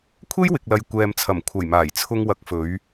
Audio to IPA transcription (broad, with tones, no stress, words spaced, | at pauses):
kʷʰe˥jwɪ˨k̚lɐ˨j kʷɛː˨mt͡sʰɐ˨˩mkʷʰɐ˨˩j maː˨˩jt͡sʰʊ˧ŋ wɐ˨˥k̚fɵ˨˧ɥ